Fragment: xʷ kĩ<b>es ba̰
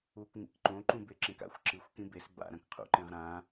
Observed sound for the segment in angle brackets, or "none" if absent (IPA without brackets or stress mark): b